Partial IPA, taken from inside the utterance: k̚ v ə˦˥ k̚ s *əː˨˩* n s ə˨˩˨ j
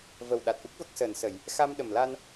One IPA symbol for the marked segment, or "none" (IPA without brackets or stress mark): əː˨˩